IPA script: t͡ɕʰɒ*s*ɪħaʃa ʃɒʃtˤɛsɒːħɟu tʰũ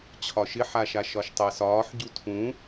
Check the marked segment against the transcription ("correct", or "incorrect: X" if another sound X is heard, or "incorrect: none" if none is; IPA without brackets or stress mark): incorrect: ʃ